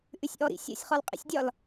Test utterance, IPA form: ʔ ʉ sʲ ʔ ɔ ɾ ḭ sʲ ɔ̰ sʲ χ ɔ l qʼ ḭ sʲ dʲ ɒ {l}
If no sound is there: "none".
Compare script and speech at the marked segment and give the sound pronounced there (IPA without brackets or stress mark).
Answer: l